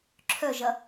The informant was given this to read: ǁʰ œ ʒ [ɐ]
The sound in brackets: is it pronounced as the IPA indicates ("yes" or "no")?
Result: yes